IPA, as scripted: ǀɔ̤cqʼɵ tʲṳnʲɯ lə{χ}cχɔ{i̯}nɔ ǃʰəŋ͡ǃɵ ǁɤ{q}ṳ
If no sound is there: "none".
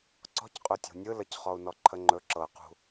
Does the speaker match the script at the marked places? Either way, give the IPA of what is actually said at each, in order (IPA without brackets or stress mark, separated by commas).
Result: none, u̯, q